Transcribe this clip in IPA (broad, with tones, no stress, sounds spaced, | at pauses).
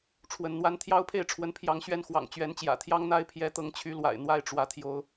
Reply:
ʈ͡ʂʰ w ə˨˦ n n̪ w a˦ n t̪ʰ j ɑ˦ ʊ̯ pʰ e˥˨ ɪ̯ ʈ͡ʂʰ w ə˨˦ n pʰ j ɑ˨˦ ŋ ɕ ɥ ɛ˥˨ n x w ɑ̰˨˩ ŋ t͡ɕ ɥ ɛ˨˦ n t͡ɕ j ä̰˨˩ t̪ʰ j ɑ˦ ŋ n̪ a˦ ɪ̯ pʰ j ɛ˨˦ t̪ ɤ˨˦ ŋ t͡ɕʰ y˨˦ l w a̰˨˩ ɪ̯ n̪ w a˥˨ ɪ̯ ʈ͡ʂ w ä˨˦ t̪ʰ j o˨˦ ʊ̯